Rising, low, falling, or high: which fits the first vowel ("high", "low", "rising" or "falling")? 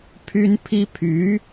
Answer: high